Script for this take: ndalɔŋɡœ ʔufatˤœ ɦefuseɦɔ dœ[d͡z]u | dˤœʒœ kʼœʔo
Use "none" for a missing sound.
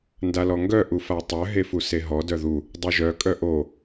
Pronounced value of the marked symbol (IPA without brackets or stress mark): ð